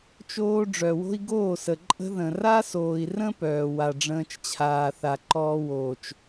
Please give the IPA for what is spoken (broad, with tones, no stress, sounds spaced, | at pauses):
t͡ʃ oː˦ ɖ͡ʐ œ˨ w o̤˦ i̯ ɡ oː˦˨ s ə˨ ǃʼ ə̤˦ ð ə̃˨ r a˦ s oː˨ i̯ r ə̃˦ p œː˨ w a˨ ɖ͡ʐ ə̃ː˦ t͡ʃ t͡ɕʰ aː˨ θ a˨ ǃ ɔː˦ w oː˨ t͡ʃ